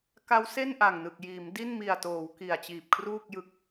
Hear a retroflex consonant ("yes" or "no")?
no